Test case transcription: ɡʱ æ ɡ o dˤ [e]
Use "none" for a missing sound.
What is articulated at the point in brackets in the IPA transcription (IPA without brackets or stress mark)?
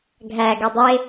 e